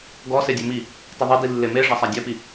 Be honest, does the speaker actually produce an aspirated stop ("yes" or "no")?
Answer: no